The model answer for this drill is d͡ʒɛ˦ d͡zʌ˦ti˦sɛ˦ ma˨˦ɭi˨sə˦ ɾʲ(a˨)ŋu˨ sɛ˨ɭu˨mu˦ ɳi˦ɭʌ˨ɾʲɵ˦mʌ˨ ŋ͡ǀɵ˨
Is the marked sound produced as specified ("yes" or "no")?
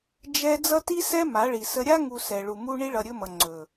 no